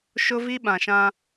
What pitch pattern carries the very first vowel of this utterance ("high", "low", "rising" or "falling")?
high